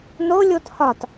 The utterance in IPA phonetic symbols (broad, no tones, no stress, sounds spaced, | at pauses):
n o lʲ o t h ɒ t